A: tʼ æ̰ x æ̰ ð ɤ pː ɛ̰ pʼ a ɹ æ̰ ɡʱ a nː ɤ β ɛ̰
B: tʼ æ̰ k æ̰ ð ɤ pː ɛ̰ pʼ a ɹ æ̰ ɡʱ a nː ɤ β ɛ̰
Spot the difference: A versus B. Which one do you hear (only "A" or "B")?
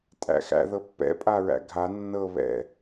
A